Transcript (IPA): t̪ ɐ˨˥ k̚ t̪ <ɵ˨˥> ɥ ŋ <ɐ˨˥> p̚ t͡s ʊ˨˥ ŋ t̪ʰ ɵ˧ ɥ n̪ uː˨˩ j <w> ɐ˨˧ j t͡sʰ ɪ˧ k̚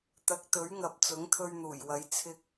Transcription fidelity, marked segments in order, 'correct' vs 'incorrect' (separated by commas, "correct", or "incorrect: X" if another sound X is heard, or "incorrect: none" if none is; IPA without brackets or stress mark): correct, incorrect: ɐ˨, correct